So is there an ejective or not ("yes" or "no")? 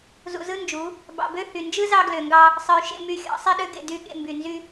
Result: no